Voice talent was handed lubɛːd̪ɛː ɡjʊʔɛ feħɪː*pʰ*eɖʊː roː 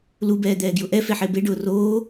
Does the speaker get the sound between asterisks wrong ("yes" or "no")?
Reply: yes